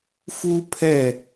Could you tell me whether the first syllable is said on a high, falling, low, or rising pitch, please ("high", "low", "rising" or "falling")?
high